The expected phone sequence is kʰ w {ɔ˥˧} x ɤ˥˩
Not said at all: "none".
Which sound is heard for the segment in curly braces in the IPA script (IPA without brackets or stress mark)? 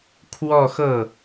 ɔ˥˧